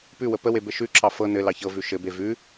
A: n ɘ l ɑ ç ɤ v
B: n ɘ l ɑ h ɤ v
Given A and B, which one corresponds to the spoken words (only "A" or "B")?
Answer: A